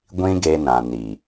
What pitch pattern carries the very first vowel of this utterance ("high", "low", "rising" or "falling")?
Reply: high